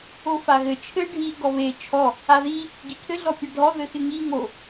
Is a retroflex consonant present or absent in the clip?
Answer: present